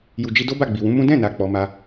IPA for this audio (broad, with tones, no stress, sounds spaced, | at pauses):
j u˨ d͡ʒ i˧ d o˦ b a˦˨ ɡ͡b i˨ w ũ˨˦ m ũ˦ d ɛ̃˦˨ n a˨ k͡p ɔ˨˦ m a˦